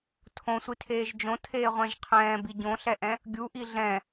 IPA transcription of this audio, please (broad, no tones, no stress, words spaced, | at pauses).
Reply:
tʰõsʷitʰeːʒ d͡ʒõtʰeːʁʷɛ̃ʒ qʰɛ̃ːbi ɟõɬɛʔɛ̃ | ɡʲuʔi ɮɛ̃